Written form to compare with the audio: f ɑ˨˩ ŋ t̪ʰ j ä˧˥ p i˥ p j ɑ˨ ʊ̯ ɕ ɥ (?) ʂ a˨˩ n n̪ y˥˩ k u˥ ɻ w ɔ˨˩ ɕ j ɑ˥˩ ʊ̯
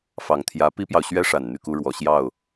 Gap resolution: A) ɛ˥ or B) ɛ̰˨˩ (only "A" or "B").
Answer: A